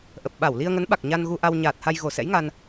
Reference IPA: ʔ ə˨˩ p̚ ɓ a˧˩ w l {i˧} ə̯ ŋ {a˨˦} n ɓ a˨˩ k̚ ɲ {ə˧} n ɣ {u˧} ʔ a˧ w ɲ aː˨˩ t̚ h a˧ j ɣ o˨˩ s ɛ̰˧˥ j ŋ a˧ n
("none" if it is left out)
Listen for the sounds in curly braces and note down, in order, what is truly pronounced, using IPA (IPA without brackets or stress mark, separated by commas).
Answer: i˧, ə˨˦, a˧, u˧